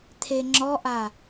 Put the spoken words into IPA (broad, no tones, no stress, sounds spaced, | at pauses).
t̪ʰ e ŋ͡ǁ ɔ ʔ a